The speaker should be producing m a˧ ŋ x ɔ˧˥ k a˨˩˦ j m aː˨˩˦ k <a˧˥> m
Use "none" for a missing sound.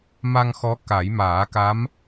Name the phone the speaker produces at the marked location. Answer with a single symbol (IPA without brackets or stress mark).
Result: a˧˥